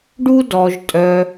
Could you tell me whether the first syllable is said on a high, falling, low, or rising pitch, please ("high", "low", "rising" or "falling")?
high